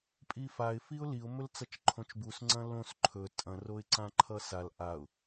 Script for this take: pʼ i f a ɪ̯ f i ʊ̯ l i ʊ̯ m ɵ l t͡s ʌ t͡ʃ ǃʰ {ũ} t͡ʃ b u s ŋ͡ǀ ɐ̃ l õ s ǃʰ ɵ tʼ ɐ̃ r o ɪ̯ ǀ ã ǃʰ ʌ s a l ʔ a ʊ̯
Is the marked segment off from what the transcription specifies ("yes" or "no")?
yes